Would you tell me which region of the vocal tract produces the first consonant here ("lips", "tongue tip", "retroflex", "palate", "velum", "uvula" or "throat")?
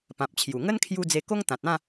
lips